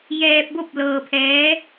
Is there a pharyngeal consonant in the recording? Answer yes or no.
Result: no